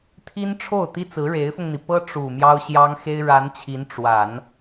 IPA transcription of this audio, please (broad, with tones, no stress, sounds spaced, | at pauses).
t̪ʰ i˥ n ʈ͡ʂʰ o˥˩ ʊ̯ t̪ i˥ t͡s ɹ̩˧˥ ɻ e˧˥ ɪ̯ f ʊ˧ ŋ n̪ i˩ p ɤ˥ ʈ͡ʂ u˨˩ m j ɑ˥ ʊ̯ ɕ j ɑ˥ ŋ x e˥ ɪ̯ ɻ a˧˥ n t͡ɕʰ i˧˥ n ʈ͡ʂ w a˨˩˦ n